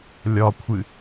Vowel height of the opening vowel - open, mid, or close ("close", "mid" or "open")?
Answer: open